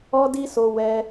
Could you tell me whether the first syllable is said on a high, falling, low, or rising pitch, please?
high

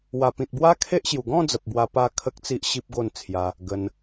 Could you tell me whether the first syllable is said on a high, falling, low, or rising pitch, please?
low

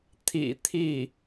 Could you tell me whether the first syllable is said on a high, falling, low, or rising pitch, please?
low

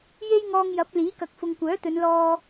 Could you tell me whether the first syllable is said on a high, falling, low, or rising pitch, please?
high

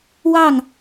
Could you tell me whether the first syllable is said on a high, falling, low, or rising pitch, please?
falling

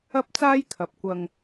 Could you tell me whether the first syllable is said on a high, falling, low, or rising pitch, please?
high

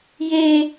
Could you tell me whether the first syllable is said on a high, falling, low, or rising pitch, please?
high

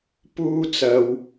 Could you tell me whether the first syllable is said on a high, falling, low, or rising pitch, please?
high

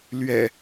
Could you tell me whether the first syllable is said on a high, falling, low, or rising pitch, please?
low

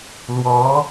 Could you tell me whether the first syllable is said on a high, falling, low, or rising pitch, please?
rising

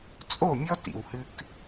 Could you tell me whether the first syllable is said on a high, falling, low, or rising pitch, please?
falling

